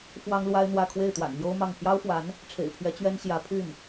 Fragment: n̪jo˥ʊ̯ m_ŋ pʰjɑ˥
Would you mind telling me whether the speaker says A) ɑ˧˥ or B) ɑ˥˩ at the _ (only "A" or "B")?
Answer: B